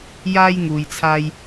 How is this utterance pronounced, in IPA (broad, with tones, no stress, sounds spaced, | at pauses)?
j aː˥ j ŋ uː˧ j t͡sʰ aː˥ j